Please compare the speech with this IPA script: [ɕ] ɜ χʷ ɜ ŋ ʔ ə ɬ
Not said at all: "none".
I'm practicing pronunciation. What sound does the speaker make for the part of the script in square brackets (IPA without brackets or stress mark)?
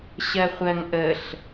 ɕ